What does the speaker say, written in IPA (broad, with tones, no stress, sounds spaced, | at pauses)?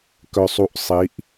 k œ˧ sˤ u˧ ʔ sˤ i˨˦ ʔ